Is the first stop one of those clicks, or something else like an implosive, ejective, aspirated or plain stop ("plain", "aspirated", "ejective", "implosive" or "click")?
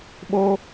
implosive